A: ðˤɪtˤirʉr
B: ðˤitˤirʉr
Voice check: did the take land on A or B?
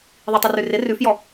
B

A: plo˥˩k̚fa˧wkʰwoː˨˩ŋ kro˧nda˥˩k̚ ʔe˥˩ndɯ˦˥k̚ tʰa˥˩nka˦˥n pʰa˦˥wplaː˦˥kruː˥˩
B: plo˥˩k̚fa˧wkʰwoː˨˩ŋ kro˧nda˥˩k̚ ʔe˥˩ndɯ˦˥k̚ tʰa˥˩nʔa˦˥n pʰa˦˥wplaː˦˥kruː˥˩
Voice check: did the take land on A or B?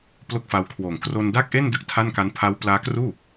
A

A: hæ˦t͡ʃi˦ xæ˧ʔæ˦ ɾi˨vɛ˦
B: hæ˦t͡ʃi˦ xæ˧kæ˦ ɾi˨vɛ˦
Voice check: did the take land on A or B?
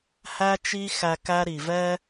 B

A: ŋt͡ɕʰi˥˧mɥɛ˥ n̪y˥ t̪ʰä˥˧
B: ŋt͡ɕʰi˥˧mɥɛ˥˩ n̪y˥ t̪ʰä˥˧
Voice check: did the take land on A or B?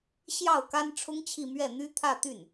B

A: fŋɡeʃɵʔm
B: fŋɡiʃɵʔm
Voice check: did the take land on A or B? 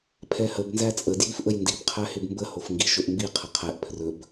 B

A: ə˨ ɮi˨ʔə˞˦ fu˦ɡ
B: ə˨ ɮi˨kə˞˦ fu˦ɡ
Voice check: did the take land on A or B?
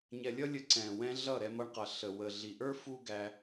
A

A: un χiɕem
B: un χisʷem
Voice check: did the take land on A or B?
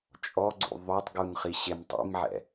A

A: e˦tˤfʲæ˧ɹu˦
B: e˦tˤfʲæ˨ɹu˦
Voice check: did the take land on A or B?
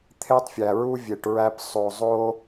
B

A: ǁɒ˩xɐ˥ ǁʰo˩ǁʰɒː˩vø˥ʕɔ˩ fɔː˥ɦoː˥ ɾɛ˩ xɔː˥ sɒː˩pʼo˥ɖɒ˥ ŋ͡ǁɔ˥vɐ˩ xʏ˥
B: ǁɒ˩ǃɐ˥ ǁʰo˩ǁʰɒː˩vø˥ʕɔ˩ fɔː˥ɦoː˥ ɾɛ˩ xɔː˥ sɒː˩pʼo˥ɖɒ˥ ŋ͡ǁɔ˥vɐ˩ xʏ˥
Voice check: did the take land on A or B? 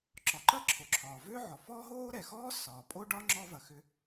B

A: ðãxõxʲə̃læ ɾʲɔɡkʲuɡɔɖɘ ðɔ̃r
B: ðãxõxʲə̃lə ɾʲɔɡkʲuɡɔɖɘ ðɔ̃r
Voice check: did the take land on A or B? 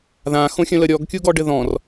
B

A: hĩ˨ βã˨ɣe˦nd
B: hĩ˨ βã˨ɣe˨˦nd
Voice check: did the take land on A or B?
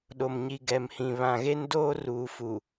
A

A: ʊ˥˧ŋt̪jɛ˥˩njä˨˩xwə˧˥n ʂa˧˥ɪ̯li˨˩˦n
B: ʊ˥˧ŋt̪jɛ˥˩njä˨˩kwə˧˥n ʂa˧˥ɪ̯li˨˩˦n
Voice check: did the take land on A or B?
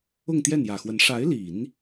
A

